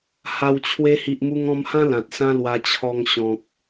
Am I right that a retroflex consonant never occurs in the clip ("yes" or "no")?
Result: yes